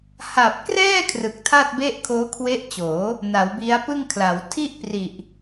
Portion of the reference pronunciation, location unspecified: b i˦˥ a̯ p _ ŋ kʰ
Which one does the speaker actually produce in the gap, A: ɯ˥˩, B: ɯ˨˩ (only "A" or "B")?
A